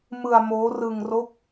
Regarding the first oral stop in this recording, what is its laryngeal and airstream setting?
plain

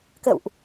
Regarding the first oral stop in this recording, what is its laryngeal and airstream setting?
plain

